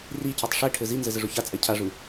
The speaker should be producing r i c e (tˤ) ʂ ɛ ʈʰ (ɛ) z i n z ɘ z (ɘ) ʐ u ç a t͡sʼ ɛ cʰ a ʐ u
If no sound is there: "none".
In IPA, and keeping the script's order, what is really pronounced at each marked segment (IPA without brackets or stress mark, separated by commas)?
tˤ, ɘ, ɘ